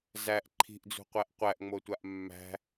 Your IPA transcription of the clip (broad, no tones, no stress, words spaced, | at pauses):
zæʔ ǃʰi̤ʔd͡zṳqʷæʔ qʷæʔŋ͡motʷaʔ mːæ̤